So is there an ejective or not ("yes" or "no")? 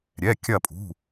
yes